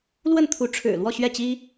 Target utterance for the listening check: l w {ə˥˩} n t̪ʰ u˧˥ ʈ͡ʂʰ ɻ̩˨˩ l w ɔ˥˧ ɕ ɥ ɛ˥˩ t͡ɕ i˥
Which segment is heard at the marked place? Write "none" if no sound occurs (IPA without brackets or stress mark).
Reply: ə˥˩